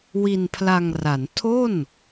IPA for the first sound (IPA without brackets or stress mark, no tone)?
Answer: w